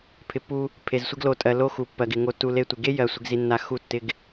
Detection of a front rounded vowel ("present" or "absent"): absent